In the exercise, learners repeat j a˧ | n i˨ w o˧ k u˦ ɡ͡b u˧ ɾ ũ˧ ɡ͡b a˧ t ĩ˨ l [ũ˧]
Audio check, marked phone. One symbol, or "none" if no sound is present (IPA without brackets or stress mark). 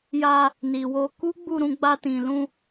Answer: ũ˧